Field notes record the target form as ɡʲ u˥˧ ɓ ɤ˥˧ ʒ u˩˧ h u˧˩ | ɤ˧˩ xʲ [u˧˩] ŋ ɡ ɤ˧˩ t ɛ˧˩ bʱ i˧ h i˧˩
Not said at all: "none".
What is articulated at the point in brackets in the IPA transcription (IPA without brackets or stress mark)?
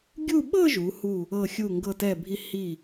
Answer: u˧˩